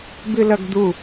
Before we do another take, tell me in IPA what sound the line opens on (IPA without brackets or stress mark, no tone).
b